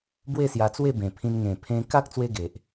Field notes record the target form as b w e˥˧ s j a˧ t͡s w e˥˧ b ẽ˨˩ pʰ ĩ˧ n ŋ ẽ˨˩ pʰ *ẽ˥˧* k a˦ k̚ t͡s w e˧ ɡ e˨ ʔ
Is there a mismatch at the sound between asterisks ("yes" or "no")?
yes